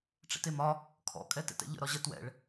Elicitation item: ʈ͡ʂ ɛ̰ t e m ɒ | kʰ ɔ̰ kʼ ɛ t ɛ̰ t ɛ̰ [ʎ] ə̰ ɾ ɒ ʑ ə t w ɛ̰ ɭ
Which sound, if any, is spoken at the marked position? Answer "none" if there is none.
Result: ʎ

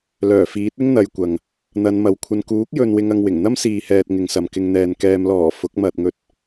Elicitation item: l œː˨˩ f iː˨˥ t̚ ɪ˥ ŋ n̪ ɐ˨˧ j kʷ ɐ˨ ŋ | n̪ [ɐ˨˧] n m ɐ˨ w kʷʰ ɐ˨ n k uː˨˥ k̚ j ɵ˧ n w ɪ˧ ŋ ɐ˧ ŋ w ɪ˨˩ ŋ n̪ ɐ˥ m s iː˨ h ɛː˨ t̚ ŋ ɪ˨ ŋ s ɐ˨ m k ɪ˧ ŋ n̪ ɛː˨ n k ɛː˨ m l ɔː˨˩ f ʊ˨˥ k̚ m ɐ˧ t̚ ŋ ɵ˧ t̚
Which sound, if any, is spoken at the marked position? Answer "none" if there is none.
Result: ɐ˨˧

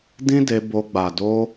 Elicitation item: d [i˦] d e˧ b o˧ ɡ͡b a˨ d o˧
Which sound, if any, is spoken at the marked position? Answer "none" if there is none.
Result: ĩ˦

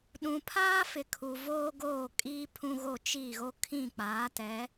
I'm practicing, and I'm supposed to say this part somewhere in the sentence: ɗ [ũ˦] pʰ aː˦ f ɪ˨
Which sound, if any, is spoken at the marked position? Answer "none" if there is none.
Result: ũ˨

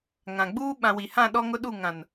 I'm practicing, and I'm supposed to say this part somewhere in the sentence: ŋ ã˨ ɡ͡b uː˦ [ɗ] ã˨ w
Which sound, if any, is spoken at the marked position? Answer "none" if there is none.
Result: ɓ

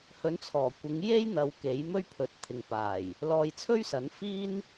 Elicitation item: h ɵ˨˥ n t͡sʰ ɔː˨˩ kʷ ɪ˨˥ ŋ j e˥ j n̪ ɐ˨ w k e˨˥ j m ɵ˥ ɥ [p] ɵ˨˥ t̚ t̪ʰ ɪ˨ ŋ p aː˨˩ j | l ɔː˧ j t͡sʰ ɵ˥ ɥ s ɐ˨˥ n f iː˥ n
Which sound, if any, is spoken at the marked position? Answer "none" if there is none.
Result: pʰ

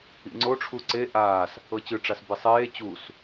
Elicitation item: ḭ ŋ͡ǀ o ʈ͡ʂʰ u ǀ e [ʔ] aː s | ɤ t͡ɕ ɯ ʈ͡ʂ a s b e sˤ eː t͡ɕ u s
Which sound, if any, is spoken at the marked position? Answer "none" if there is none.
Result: ʔ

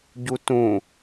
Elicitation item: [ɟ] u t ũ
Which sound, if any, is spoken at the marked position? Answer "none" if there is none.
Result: ɟ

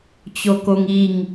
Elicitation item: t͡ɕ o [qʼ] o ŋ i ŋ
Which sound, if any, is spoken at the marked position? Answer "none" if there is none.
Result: k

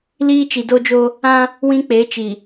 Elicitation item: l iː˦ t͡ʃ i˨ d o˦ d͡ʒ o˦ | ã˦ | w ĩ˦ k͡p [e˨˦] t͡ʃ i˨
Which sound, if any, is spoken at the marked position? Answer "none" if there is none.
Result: e˨˦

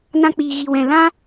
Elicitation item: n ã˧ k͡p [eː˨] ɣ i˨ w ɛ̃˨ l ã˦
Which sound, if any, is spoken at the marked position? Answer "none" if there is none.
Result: iː˨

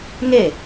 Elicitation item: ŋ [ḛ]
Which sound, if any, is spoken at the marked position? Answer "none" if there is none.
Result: e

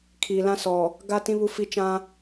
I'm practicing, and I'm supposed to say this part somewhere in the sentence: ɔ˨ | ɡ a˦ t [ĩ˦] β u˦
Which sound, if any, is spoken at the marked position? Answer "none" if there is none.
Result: ĩ˦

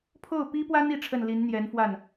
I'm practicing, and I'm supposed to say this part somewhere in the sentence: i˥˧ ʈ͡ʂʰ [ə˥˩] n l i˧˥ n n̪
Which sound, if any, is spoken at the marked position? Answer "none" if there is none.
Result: ə˥˩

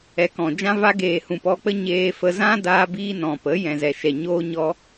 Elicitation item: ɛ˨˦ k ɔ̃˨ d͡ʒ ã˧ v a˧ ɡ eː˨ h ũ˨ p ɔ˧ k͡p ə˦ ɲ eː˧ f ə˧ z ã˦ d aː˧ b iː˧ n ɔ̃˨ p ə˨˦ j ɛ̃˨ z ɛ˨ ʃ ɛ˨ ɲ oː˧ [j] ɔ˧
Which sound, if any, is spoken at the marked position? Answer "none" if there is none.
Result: ɲ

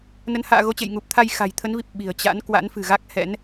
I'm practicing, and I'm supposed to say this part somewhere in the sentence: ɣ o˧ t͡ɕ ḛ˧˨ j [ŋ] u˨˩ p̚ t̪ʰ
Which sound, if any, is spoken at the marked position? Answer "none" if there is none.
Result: ŋ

